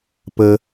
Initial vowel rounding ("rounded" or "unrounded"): unrounded